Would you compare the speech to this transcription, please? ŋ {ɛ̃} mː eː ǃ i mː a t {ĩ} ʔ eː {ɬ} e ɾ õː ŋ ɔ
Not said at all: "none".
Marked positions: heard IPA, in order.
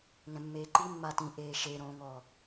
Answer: ɛ̃, ĩ, ʃ

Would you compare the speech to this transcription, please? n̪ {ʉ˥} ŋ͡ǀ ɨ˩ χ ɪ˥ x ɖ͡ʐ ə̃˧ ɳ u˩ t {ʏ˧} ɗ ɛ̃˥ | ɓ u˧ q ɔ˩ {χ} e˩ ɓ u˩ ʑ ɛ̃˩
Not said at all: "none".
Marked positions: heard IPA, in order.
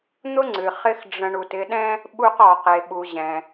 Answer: ʊ˥, ɪ˧, q

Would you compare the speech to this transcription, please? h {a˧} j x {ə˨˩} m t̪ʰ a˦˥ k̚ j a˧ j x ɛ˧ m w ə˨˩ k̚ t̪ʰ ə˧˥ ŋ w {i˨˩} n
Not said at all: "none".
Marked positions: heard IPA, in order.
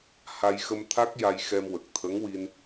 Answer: a˧, ə˧, i˧

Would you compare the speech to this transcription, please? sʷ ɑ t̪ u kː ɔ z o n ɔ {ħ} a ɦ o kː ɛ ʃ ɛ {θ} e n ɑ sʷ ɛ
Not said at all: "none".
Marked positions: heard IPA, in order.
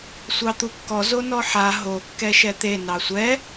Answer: ħ, t̪

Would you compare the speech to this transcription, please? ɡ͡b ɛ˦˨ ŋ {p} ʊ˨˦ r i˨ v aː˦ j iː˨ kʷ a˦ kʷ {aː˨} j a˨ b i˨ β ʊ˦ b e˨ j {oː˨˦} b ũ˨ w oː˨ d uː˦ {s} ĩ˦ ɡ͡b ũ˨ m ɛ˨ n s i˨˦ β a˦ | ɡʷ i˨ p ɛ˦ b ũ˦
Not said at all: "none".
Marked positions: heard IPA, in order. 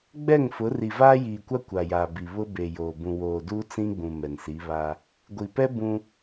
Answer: f, a˨, oː˨, t͡s

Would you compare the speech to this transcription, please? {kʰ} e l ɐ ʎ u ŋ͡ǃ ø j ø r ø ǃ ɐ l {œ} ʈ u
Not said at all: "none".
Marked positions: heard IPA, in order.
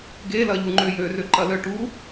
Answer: ɡ, œ

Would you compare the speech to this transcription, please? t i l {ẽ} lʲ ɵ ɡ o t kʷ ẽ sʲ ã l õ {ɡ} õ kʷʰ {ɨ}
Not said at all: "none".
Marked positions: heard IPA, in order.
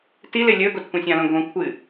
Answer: e, ɡ, ɨ

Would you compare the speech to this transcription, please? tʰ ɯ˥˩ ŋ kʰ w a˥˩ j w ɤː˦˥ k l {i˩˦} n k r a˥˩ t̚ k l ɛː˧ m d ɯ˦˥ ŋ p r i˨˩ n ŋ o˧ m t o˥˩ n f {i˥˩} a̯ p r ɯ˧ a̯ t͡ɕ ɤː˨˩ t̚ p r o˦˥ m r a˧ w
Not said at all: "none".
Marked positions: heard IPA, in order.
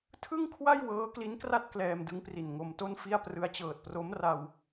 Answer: i˦˥, i˥˩

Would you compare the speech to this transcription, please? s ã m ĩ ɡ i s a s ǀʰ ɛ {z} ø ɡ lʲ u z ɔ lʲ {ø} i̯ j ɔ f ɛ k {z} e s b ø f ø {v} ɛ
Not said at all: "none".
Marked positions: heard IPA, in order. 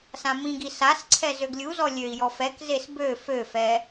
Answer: z, ø, z, f

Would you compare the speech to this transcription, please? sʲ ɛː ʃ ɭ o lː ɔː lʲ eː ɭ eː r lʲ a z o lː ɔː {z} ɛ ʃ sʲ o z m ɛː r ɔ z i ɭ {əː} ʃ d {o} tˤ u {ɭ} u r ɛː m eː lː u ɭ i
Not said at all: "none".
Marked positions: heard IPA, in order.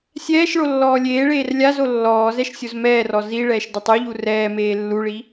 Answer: z, ɛː, ɤ, ʎ

